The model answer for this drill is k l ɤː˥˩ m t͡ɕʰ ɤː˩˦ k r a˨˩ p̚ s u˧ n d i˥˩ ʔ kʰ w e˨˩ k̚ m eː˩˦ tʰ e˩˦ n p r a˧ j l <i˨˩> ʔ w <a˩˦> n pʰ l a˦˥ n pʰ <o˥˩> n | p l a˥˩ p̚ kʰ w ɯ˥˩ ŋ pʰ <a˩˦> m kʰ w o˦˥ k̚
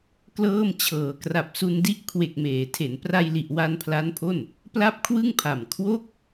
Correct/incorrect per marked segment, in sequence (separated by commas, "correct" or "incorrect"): correct, incorrect, correct, incorrect